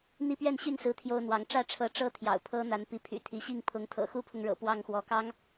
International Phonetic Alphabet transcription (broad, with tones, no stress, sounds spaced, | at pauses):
n̪ i˦ p ɥ ɛ˥˨ n ɕ y˥˨ n s ɹ̩˦ t̪ʰ j o˦ ʊ̯ n̪ w ɑ˨˦ ŋ ʈ͡ʂ ä˥˨ ʈ͡ʂʰ ɤ˨˦ ʈ͡ʂ ɤ˥˨ t̪ʰ j ɑ̰˨˩ ʊ̯ pʰ ɤ˦ n̪ a˨˦ n p i˨˦ pʰ y̰˨˩ t̪ʰ i˨˦ ɕ i˥˨ ŋ pʰ ʊ˨˦ ŋ t̪ʰ ɤ̰˨˩ x u˦ pʰ ʊ˨ ŋ ɻ ɤ̰˨˩ p w ɑ˥˨ ŋ x w ɔ˨˦ k ɑ˦ ŋ